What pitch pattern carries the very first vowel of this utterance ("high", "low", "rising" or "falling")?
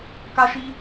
high